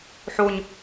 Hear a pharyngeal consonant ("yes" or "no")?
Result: yes